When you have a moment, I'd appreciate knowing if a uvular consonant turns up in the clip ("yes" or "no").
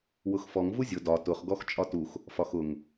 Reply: yes